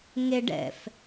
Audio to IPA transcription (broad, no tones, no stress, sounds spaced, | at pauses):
ŋ e ɖ ɛ̰ f